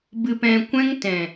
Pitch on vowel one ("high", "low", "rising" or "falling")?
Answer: low